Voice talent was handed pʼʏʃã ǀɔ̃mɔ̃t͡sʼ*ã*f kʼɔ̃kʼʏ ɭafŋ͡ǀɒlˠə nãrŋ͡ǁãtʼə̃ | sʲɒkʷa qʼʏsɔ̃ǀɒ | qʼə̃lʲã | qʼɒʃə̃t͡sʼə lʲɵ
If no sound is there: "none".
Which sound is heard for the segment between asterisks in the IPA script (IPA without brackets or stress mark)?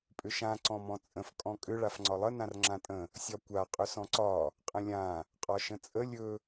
ə̃